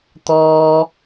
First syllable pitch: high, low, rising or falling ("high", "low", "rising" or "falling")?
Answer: high